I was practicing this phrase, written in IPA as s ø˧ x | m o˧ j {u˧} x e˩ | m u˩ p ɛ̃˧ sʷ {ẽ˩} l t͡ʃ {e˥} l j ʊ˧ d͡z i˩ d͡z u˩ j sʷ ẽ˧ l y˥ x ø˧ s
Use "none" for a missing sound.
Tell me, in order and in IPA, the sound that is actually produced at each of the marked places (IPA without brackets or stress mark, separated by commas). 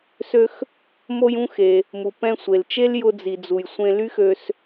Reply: ũ˧, e˩, e˥